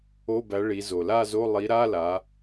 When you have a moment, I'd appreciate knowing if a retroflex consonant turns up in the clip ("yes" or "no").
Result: yes